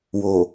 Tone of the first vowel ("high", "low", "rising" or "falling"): low